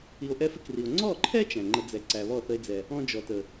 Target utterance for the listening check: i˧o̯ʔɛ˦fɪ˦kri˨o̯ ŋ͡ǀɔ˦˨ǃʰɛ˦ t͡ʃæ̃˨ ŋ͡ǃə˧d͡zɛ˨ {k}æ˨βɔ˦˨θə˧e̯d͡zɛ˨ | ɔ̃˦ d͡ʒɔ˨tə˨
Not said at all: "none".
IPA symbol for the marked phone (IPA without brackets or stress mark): ǀ